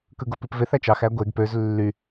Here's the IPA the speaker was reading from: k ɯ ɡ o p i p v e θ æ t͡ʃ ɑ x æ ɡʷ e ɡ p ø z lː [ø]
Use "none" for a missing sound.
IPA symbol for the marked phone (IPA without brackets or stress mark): y